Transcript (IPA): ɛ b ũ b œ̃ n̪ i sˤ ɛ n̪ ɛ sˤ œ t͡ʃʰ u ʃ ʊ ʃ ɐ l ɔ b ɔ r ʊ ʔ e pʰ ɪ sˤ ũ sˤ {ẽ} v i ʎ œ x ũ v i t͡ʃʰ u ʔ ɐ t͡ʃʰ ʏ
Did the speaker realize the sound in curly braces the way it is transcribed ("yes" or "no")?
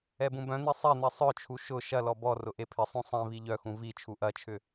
no